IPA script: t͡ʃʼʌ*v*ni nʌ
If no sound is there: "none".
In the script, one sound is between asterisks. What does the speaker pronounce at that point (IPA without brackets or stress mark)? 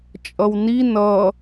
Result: w